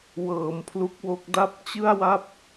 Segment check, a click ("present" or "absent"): absent